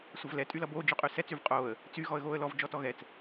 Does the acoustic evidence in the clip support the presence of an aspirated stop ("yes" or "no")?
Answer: no